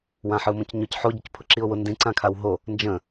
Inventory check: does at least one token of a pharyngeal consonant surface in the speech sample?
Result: yes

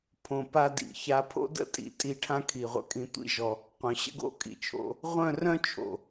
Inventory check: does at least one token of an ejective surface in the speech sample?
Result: yes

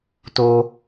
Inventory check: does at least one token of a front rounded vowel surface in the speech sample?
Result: no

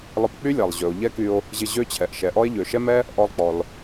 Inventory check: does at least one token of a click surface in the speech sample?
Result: no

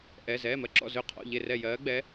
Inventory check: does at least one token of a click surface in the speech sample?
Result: yes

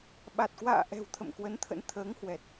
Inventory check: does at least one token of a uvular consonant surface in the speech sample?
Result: no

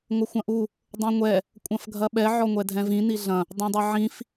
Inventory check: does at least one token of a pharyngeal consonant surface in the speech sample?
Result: yes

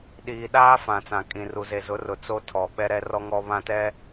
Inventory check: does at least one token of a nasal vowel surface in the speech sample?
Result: yes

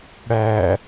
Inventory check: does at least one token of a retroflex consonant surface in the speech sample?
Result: yes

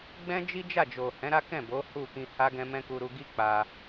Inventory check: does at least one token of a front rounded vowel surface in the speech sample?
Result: no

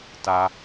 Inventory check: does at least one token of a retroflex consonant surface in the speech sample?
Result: no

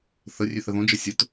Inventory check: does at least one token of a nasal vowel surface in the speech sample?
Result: yes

